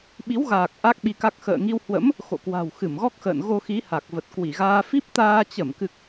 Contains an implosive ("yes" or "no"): yes